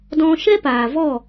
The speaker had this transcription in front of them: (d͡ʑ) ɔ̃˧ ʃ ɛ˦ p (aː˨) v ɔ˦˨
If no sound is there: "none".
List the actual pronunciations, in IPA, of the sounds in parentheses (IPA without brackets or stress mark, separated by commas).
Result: d, aː˨